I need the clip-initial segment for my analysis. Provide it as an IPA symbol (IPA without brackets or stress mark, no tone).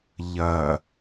ʎ